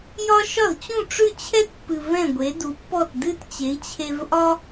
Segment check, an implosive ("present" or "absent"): absent